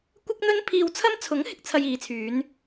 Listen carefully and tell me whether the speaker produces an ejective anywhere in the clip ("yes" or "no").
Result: no